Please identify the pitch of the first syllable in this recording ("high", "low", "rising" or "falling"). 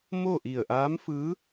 falling